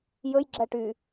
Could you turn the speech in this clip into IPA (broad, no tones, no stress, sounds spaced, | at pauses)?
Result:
j ɵ j ɡ͡ǁ æ ʈ y